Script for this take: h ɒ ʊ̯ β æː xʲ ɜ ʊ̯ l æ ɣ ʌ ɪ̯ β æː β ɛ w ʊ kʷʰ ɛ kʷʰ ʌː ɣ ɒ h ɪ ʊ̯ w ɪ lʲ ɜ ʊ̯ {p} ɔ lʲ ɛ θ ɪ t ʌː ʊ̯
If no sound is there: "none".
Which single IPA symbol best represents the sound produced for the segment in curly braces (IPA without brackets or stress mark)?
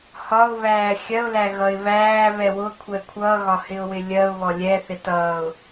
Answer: β